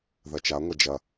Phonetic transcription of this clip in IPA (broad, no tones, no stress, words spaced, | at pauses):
ðɐt͡ʃaŋʷɐ d͡ʒɐ